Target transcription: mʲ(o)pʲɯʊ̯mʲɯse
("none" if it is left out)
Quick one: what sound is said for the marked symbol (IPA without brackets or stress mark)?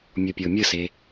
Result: o